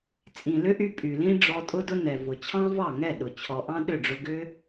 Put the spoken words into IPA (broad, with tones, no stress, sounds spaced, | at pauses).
t͡sʼ ĩ˨ l ʏ˦ ʔ y˧ pʼ y˨ l ĩ˦ ɖ͡ʐ ɔ˧ tʼ ʊ˦ d ʊ˦ n ɛ˨ v ʊ˨ t͡ɕʰ ɑ̃˦ v ɑ˦˨ ŋ ɛ˦˨ ɗ ʊ˨ t͡ɕʰ ɔ˨ ʔ ɑ̃˦ ɗ ʏ˦˨ ɖ͡ʐ ʊ˧ ɡ ʏ˦